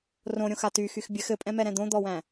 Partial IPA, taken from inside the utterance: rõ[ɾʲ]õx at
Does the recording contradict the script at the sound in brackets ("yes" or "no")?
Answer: no